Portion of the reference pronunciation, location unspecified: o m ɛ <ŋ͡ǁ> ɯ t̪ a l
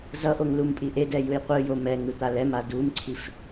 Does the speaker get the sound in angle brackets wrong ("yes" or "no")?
yes